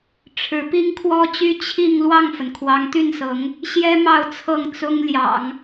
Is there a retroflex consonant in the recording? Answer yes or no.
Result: yes